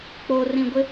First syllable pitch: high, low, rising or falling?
low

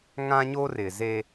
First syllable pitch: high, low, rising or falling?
high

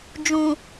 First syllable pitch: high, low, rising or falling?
low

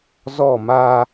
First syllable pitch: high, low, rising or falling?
falling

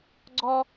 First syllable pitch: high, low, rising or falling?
high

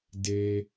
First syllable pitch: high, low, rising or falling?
low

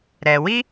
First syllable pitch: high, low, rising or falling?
low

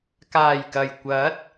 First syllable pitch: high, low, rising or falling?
low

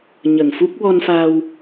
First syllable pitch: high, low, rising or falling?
low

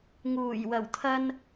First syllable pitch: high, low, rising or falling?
low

